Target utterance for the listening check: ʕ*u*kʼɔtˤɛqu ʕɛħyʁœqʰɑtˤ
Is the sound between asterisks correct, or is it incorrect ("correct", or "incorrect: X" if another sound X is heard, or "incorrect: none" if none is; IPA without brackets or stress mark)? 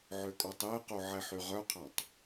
incorrect: ø